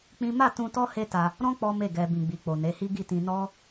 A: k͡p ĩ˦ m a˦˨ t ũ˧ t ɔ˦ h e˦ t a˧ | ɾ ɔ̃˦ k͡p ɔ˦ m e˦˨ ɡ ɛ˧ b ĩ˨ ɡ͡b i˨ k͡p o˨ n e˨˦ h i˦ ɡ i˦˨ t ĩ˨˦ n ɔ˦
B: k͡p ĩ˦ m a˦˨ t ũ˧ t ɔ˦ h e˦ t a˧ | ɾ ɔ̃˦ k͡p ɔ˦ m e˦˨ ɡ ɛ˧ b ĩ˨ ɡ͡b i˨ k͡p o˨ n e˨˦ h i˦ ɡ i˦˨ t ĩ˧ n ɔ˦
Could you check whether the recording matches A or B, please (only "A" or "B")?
B